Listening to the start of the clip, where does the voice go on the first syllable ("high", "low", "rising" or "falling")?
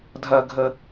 low